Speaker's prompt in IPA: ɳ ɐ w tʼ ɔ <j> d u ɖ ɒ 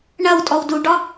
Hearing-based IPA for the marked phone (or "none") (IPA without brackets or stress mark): w